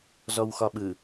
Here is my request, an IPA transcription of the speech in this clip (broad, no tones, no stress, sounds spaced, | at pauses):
z ɔ w x ɒ ɓ ɯ